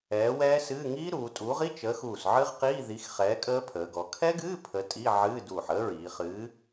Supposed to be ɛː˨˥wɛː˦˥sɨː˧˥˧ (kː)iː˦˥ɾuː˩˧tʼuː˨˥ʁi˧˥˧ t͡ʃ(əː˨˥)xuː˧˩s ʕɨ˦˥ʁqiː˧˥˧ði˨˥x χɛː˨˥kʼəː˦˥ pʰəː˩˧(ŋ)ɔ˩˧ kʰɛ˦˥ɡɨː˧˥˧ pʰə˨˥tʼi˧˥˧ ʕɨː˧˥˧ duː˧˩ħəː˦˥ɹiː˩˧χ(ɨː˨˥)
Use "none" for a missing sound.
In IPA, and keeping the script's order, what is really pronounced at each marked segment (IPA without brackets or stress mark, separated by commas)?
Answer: ŋ, əː˨˥, ɡ, ɨː˨˥